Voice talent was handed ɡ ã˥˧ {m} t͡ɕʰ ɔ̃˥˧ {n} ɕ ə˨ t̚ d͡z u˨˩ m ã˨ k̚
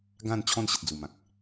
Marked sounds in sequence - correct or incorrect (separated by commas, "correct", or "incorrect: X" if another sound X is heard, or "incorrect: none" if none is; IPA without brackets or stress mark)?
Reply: incorrect: n, correct